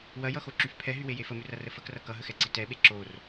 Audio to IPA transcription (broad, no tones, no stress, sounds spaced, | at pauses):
w ɐ j ʌ x o ǁ y f pʰ ɛ ɦ y w e j e f ə m ʉ r ɐ r ə f ə k r ʌ k ʌ ɦ ə x ɛ ǀ i t ɛ ɓ e ǁ o r